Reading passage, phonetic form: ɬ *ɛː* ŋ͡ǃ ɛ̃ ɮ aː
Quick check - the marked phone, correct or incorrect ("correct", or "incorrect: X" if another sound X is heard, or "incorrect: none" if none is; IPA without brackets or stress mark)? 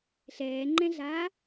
correct